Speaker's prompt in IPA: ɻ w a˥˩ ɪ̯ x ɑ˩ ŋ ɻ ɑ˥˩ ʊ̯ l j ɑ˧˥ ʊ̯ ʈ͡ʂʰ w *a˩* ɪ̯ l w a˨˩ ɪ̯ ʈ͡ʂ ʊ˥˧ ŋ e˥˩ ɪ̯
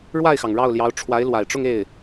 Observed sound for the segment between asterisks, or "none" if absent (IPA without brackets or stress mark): a˧˥